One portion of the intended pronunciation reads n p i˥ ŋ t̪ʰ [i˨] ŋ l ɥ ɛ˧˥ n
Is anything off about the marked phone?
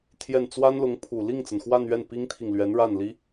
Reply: no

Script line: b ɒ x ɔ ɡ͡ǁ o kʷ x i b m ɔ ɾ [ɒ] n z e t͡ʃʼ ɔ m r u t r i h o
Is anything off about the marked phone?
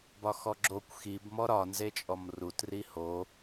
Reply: no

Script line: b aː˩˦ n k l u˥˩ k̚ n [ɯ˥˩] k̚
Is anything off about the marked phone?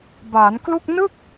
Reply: no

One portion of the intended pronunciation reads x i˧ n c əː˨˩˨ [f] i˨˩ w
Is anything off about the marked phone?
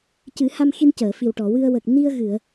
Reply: no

